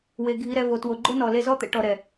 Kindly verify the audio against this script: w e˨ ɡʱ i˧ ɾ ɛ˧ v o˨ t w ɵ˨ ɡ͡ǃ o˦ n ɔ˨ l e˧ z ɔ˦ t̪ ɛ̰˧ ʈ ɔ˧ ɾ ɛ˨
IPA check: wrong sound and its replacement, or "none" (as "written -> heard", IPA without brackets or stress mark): ɵ˨ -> o˨